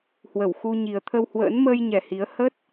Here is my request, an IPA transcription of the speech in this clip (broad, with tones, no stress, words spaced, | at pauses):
hwə˧˩wxu˧ ɲi˨˩ə̯t̪ʰə˧whwə̰ː˧˥n məː˧jɲɛ˨˩ hi˨˦ə̯ hə˦˥t̚